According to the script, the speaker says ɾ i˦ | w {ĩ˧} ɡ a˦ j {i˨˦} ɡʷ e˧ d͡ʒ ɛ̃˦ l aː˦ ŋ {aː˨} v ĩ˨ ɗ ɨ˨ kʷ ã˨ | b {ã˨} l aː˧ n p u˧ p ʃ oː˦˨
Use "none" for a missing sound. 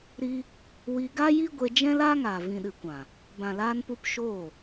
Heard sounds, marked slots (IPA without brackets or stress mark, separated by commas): i˧, i˦, aː˨, ã˨